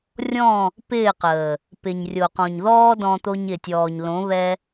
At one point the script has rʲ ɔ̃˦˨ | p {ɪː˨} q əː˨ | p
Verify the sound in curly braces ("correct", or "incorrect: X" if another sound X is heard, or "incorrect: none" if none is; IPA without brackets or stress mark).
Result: incorrect: ɪː˦˨